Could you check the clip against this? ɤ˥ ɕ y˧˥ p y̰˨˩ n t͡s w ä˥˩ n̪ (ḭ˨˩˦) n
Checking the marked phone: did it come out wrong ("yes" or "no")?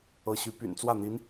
yes